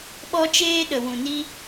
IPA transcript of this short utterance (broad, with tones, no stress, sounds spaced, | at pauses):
ɓ ɔ˦ t͡ʃ eː˦ ɗ ə˨ w ũ˨ n i˦